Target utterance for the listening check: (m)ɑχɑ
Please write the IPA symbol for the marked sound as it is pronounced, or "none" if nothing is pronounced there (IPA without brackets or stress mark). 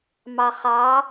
m